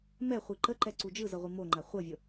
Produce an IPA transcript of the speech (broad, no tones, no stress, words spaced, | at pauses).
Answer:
mɛχʷi ǃəǃɛ ǀud͡ʒɯ zɤʁʷimoŋ͡ǃa χʷɤvʲɤ